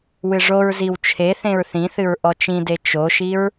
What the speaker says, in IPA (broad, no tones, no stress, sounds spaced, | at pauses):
w ɨ ʐ o ɹ z i w t͡ʃʰ e θ ẽ ɹ θ ĩ θ ɨ ɹ ʔ ɔ t͡ʃ ĩ d e t͡ʃ o ʃ i ɹ